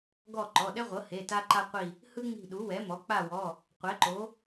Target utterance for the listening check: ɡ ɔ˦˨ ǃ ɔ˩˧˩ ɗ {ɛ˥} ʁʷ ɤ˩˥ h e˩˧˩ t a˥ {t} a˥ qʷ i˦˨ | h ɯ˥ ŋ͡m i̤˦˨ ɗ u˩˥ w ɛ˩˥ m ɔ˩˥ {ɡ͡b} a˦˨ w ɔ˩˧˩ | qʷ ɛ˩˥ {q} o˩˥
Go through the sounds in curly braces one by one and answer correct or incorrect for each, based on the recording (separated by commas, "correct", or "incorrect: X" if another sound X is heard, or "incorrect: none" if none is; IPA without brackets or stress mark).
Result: correct, incorrect: ǃ, incorrect: k͡p, incorrect: ǃ